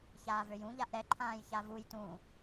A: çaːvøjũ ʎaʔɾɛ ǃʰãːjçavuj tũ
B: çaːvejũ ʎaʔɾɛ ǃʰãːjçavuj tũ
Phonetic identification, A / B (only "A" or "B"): A